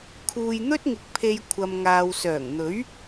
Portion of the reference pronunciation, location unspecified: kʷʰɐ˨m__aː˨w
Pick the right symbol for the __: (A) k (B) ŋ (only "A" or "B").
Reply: B